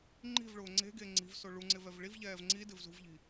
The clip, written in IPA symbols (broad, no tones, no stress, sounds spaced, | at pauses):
ŋ͡ǃ i̤ v ɭ ʊː ŋ͡ǀ e̤ ɡ e ŋ͡ǀ i̤ v s o ɭ u ŋ͡ǀ ɪ v ɛ v ɭ i v ʎ ɛː v ŋ͡ǀ i d ɪ v z ṳ v ʎ i̤